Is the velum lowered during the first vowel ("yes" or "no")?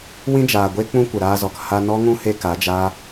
yes